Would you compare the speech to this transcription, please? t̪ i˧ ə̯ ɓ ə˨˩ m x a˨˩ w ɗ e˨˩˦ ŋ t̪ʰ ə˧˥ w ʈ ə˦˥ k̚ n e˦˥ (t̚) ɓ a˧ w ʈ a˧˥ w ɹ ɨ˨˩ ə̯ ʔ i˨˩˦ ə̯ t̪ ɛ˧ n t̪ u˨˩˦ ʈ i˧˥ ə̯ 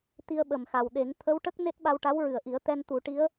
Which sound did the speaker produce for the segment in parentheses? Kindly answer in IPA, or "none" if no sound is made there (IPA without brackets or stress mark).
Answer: t̚